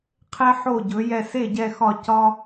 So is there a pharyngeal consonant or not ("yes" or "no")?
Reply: yes